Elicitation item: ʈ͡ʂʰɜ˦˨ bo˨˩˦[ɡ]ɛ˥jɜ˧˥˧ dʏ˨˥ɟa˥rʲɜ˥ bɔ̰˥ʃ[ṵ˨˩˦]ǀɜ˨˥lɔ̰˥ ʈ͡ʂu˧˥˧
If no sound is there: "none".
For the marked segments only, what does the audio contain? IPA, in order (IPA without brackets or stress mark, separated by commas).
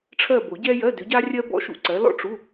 ɟ, ṵ˥